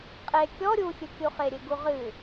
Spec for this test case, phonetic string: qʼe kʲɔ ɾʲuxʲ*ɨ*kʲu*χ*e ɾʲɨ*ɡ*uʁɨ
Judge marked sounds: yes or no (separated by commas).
yes, yes, yes